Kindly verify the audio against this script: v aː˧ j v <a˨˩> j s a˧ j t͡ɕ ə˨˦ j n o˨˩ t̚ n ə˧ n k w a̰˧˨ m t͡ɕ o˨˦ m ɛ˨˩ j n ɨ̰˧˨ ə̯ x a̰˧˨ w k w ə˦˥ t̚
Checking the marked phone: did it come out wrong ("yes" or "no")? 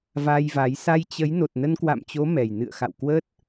yes